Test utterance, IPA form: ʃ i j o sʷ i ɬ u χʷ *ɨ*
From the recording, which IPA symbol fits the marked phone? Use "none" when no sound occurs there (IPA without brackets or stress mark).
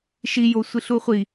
i